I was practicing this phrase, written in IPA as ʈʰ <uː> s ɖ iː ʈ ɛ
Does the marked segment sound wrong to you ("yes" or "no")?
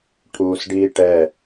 no